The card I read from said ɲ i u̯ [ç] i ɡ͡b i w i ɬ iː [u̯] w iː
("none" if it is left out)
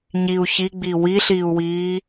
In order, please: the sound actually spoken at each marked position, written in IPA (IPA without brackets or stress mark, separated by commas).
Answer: ç, u̯